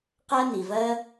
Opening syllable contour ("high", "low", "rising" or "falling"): high